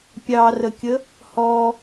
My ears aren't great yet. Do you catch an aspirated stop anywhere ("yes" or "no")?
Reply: no